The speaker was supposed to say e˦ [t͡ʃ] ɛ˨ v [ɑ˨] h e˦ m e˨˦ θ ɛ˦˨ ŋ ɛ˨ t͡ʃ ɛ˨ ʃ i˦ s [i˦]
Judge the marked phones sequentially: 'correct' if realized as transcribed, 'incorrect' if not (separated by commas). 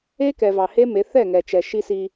incorrect, correct, correct